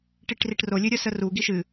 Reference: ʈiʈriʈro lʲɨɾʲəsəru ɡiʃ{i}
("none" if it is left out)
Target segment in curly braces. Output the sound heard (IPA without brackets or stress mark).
ɨ